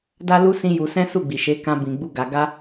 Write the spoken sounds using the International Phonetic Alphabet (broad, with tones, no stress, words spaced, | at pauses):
da˦lu˦ sĩ˦ju˧ sɛ̃˦su˦˨ɡ͡bi˨ ʃe˨˦kã˧ bĩ˨ɡ͡bu˧ɡa˨ ɡa˧